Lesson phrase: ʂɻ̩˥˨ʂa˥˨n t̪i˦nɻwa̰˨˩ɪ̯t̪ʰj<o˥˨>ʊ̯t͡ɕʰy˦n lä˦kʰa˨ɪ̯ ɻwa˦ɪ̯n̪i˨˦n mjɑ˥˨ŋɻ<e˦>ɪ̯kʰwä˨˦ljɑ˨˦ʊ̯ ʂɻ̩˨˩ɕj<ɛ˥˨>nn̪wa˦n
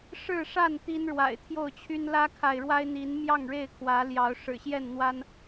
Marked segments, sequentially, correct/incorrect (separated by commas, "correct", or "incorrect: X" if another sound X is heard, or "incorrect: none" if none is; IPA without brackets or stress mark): correct, incorrect: e˥˨, correct